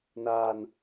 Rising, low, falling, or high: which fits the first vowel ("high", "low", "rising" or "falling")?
low